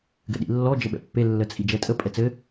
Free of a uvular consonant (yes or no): yes